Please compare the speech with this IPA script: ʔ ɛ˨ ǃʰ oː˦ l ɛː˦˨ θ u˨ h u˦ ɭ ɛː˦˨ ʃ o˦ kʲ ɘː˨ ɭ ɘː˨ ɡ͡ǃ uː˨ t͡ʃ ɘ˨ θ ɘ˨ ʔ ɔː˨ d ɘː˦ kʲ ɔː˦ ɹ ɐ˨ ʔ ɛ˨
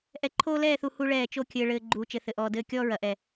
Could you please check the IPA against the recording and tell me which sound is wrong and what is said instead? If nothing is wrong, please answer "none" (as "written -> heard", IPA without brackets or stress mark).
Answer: ʃ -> t͡ʃ